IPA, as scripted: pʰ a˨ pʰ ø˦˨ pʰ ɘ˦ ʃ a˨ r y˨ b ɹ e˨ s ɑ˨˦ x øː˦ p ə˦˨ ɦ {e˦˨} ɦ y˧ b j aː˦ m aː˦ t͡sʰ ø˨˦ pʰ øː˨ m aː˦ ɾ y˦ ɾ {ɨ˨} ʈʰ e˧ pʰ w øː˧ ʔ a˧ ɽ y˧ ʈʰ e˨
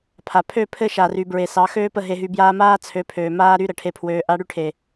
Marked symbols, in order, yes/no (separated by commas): no, no